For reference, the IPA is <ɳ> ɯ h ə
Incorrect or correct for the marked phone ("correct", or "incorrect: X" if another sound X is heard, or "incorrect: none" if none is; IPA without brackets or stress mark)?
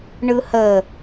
correct